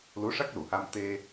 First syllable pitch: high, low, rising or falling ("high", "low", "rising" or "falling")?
rising